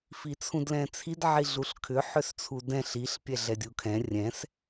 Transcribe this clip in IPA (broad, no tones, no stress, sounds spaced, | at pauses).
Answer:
f i t͡sʰ ũ d l ɛ̃ t͡sʰ i d ʕ i ɮ u ɬ kʰ ʏ ħ ʏ s t͡sʰ u d ɛ̃ ɬ i ɬ pʲ ɛ ɮ ɛ dʲ u kʰ ɛ̃ rʲ ɛ̃ s